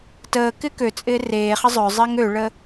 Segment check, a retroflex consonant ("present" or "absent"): present